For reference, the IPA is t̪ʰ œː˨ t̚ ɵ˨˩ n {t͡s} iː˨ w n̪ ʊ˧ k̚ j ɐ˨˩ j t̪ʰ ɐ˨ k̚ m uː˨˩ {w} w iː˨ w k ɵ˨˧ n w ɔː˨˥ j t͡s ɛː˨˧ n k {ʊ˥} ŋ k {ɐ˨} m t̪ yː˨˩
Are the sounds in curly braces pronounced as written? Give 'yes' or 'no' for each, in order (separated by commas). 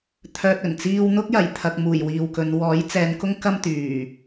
yes, no, yes, no